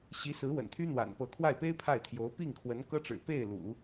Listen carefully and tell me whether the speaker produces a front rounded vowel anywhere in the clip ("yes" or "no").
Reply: yes